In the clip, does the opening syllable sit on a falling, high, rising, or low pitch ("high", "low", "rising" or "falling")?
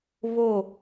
falling